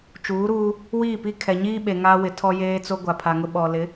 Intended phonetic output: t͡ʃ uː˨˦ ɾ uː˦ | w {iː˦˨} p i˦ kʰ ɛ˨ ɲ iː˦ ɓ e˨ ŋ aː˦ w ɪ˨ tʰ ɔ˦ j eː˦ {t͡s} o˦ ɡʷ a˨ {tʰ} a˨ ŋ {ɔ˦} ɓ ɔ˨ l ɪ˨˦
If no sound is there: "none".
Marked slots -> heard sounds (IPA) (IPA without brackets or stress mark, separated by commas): iː˦˨, t͡s, pʰ, ʊ˦